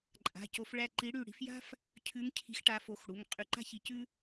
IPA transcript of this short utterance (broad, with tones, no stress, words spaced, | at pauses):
ǃʼa̤˩˧˩co˨˦f ɭæ˧˩ǃi˨˦ɽy˧˩ ɽi̤˨˦fja̤˥f | cʰʉ˨˦ŋcʰi̤˨˦xʈa˨˦fo˩˧˩x ɽu˩˧˩ŋ qʼy˨˦ǃa̤˥ çi˧˩ cʉ˥